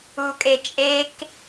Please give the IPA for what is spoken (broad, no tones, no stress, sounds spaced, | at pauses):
u kʼ e t͡ʃʼ e k